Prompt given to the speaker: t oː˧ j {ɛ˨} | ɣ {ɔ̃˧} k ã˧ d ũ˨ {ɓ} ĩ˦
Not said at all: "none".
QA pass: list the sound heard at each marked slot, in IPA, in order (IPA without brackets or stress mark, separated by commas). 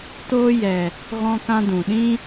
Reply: ɛ˨, ɔ̃˧, ɗ